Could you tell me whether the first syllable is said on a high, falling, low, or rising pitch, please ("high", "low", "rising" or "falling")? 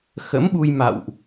rising